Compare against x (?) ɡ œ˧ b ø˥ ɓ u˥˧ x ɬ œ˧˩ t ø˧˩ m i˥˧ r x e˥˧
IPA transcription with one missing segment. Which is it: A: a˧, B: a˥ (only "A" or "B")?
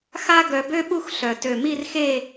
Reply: B